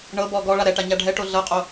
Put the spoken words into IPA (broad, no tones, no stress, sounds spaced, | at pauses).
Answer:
ɳ ɤ b ɔ ɡ ɔ ɭ a ɾ ɛ ʈ a ɲ a ɖʱ ɛ ʈ o ɮ ɤ qʼ o